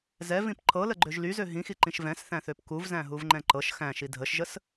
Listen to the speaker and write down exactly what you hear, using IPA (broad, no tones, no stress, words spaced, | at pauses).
zɛvĩp ǃʰɤləɡ͡ǃøʒ lyzø ɦĩxiǃĩʃ vɛ̃sθæ̃θøp kuvzæ̃ɦuvŋ͡ǃɛ̃ ǃɤʃ xæ̃ʃi dʱəʃʒəs